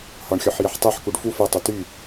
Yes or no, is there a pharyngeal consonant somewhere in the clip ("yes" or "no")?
yes